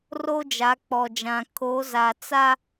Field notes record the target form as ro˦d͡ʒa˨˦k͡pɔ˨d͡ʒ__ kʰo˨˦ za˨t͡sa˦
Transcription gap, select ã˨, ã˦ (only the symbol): ã˨